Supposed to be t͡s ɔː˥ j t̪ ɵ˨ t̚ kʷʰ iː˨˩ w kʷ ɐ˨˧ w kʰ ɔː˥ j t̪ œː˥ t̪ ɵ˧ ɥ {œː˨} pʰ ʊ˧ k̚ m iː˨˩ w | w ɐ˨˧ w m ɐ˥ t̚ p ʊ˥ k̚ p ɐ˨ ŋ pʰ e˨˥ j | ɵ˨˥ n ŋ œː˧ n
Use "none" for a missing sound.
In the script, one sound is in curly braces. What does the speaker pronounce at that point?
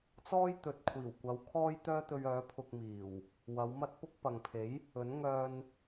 œː˨˥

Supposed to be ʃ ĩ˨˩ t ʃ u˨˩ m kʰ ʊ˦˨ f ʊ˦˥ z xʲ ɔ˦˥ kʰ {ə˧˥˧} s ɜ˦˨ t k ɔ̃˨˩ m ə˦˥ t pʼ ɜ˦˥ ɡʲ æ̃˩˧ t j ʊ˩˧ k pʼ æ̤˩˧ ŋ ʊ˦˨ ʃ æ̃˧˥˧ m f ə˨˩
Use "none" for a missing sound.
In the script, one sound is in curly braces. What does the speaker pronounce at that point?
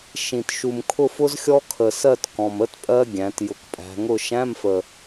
ə˨˩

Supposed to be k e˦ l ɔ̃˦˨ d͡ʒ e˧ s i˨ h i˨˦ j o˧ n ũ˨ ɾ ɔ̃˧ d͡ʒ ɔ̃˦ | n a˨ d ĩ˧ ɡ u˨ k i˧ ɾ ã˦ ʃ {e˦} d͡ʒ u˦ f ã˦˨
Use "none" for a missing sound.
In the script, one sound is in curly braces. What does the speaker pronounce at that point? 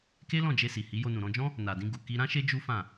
e˦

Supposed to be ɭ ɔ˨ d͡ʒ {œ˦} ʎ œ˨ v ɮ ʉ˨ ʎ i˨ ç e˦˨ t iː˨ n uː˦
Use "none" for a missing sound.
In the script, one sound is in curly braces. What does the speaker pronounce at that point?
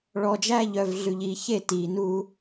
æ˦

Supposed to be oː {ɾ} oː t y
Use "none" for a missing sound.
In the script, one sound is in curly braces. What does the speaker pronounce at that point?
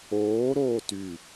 ɾ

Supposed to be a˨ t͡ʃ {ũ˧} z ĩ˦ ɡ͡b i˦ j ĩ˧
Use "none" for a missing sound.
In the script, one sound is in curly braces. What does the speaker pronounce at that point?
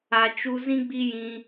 u˧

